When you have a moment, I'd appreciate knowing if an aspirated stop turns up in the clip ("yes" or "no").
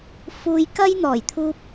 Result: yes